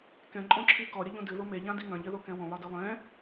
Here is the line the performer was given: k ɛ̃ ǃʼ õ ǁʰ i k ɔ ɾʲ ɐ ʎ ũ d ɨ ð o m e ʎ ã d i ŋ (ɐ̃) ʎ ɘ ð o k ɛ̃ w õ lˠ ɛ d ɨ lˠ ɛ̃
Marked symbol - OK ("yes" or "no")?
yes